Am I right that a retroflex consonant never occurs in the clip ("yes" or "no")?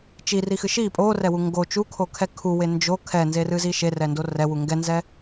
yes